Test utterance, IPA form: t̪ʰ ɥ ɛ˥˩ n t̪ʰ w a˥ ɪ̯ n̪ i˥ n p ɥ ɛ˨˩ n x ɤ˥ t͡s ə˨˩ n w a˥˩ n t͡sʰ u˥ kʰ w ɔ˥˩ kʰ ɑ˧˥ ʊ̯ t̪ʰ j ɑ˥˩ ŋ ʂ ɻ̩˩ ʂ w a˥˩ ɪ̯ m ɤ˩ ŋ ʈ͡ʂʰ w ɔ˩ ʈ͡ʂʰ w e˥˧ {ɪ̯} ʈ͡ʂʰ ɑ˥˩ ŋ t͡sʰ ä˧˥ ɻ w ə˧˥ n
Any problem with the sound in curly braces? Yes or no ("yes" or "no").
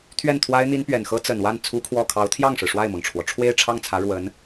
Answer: no